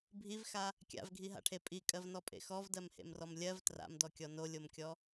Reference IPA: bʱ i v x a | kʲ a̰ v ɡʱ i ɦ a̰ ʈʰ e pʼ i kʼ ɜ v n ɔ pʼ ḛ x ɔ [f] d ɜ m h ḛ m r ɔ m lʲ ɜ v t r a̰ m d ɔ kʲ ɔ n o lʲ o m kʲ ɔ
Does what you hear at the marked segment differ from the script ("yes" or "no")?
yes